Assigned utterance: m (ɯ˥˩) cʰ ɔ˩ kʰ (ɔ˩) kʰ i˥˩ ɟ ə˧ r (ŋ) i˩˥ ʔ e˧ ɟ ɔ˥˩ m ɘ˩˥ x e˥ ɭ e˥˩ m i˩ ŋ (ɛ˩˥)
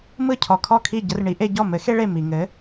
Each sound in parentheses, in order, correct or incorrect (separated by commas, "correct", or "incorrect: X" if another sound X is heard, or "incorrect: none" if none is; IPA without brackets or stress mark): correct, incorrect: ɔ˥˩, incorrect: ɳ, incorrect: ɘ˩˥